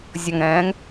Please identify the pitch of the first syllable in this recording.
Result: low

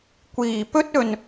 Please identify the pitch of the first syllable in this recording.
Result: low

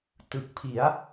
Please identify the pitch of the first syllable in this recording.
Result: low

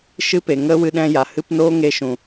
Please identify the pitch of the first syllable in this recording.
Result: high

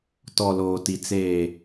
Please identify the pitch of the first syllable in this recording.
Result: low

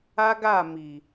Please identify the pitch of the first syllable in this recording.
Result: high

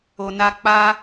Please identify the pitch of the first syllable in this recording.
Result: low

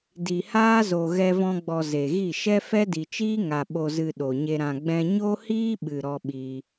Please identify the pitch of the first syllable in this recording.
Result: low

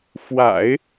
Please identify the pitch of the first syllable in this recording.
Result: low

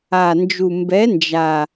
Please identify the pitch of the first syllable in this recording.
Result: low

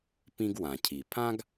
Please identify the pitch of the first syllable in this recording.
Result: high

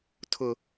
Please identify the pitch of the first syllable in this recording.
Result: low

